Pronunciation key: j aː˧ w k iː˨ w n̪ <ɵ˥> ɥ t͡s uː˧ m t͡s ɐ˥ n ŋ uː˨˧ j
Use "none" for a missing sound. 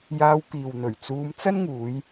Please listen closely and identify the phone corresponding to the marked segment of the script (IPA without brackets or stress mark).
ɵ˨˩